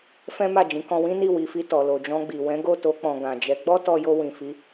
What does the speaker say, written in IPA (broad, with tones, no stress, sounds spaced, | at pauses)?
f ɛ̃˦ m a˦˨ d͡ʒ ĩ˨˦ k ɔ̃˧ w ĩ˦ n i˦˨ w i˨˦ f i˧ t ɔ˨ l o˨ d͡ʒ ɔ̃˧ ɡ͡b i˨ w ɛ̃˨˦ ɡ o˦˨ t o˧ k͡p ɔ̃˨ ɡ ã˨ d͡ʒ ɛ˨˦ ɡ͡b ɔ˦ t ɔ˧ j o˧ w ĩ˨ f i˨˦